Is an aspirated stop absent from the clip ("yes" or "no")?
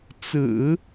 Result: yes